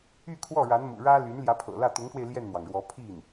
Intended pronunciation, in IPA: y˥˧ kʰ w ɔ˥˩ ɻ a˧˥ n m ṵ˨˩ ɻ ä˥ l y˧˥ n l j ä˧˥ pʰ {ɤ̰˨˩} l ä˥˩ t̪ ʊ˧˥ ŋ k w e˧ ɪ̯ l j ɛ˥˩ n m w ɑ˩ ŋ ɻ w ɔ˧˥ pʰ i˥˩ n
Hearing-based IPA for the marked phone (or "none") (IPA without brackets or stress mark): ɤ̰˨˩